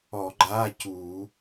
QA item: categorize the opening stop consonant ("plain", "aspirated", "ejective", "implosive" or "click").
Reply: click